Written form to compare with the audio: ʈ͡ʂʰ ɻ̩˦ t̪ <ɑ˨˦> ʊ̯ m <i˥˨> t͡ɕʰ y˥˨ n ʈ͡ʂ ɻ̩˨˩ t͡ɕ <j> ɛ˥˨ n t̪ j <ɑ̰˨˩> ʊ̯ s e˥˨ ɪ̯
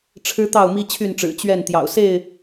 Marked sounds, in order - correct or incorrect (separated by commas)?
incorrect, incorrect, incorrect, correct